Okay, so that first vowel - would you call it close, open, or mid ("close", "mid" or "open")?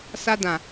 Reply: open